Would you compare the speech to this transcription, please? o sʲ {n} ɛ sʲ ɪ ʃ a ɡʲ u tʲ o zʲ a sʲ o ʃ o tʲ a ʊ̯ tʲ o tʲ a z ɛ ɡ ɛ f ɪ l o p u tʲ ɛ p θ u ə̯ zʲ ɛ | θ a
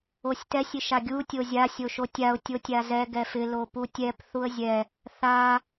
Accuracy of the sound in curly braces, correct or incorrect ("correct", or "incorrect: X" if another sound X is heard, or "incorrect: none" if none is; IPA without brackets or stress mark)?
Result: incorrect: t